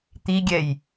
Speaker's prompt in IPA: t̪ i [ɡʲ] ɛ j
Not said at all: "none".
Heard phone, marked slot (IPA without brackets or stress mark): ɡʲ